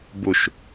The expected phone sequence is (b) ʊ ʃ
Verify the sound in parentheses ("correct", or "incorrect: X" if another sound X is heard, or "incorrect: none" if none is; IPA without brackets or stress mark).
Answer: correct